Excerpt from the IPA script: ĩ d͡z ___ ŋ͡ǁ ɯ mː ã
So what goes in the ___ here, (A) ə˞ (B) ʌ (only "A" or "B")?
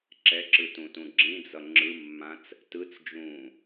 B